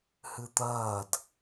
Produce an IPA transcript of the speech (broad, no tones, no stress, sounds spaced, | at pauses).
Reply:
h ɨ t̪ ɐː d